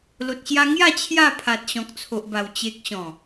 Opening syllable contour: low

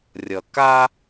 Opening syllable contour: low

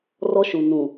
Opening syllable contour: high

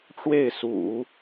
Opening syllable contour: falling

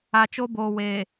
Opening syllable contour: low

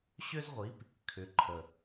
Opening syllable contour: high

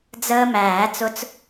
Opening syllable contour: high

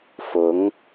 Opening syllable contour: rising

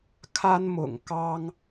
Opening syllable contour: high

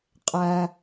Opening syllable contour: low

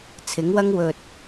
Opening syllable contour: rising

